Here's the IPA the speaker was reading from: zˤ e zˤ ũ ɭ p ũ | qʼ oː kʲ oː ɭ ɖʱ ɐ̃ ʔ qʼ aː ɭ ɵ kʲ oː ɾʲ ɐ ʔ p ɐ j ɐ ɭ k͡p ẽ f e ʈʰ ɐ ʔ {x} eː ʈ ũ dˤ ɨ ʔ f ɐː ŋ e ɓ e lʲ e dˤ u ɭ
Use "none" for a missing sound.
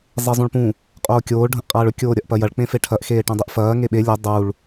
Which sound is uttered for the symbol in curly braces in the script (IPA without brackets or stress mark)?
x